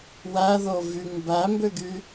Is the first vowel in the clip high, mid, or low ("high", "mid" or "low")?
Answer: low